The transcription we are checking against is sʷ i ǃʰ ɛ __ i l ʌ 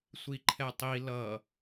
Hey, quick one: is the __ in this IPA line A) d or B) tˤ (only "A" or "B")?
B